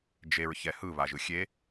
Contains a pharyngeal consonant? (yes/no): no